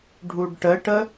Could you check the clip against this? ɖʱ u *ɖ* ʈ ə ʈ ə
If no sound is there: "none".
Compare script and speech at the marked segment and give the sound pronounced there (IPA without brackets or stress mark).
ɖ